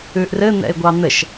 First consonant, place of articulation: glottal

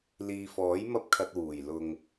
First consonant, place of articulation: alveolar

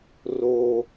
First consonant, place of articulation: alveolar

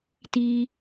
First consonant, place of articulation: alveolar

